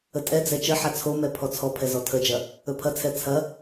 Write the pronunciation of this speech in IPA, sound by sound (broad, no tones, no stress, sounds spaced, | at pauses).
ə tʼ ɛ d͡z ɛ t͡ʃ ə ħ a t͡sʰ o m ɛ pʰ ɔ t͡sʰ ɔ pʰ ɛ z ɔ tʰ ə d͡ʒ ɐ | ɵ pʰ ɐ t͡sʰ ɛ t͡sʰ ɐ